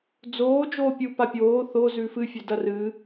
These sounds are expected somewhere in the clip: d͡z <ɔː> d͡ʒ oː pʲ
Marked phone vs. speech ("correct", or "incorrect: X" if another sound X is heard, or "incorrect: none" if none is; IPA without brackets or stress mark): incorrect: oː